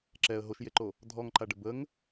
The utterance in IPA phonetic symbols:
ǁ ɛ ə̯ ɦ o ʃ j e ǃ o | dʱ ɔ ŋ ǃ a ɖ ə b ə ŋ

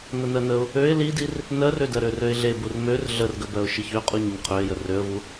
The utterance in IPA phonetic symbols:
n ə n ɜ n ə ʊ̯ | ø ɪ̯ l i d i r | n ɜ r ø d ɜ ɾ ø r ø ɪ̯ ɮ e b u r m ø r ɮ ə r ɡ ə b ɜ ʊ̯ ʃ i ç ø qʼ u ɲ ə ɲ qʰ ø ɪ̯ j ə r ø ə̯ v u

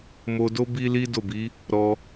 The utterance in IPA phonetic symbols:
m o˧ d o˦ b i˦ l i˦ d o˦˨ b i˨˦ | ɾ ɔ˧

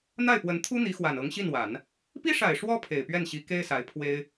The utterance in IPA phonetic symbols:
n̪ a˥˩ ɪ̯ p w ə˧˥ n t̪ʰ u˥ n̪ i˧˥ x w a˨˩ n ɤ˧˥ ŋ ɕ i˥˩ n w a˨˩˦ n | p i˥ ʂ a˨˩ ɪ̯ ʂ w ɔ˥ pʰ e˨˩ ɪ̯ p ɥ ɛ˥˩ n ɕ i˧˥ k e˥ ɪ̯ s a˧˥ ɪ̯ pʰ w e˥ ɪ̯

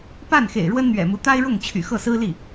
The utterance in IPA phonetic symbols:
p a˥˩ n x ḛ˨˩ ɪ̯ ɻ w ə˥ n n̪ ɥ ɛ̰˨˩ m u˧˥ t̪ a˥ ɪ̯ ɻ ʊ˥˩ ŋ t͡ɕʰ y̰˨˩ x ɤ˥˩ s ɹ̩˥ l i˥˩

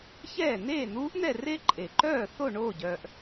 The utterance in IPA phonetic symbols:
ç ɛː˥˩ n̪ eː˥˩ n̪ uː˧˥ ʔ n̪ ɛ˥˩ r e˥˧ ǃʼ e˨ ǃ œː˥˩ θ o˥˩ ɳ oː˥˩ ɟ œː˨ ʔ

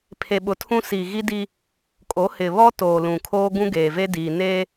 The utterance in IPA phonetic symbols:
pʰ e˨ ɓ ʊ˨ tʰ ũ˦ s i˨ ɣ i˦ d i˦ | kʼ o˨˦ h ɪ˨ β ɔ˦ t oː˨ l ũ˨ kʰ oː˦ ɡ ũ˦ ɡ eː˨ v e˦ d iː˨ n eː˦

